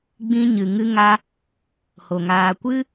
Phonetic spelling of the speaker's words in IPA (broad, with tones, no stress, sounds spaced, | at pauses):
ɡ͡b ĩ˧ ɲ ɨ˨ ŋ ɨ˧ ŋ a˧ | h o˨ ŋ aː˨ kʷ ɨ˦